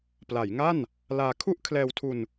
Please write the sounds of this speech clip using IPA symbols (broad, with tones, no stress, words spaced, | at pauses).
pla˩˦jŋa˥˩n | laː˧ kʰu˥˩ʔ kʰlɛː˧wtʰu˧n